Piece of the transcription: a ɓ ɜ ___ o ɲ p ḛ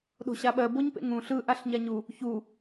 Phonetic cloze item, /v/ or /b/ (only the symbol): b